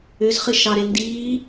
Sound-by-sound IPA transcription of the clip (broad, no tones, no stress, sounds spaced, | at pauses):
ʏ z χ ɨ ʃ ɑ ɾ e n d iː